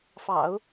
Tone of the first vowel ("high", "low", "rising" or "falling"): low